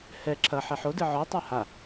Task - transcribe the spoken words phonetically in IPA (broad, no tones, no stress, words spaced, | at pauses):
hɛ ǁʰɐ ħɛħodɨ ʕɔtˤa ha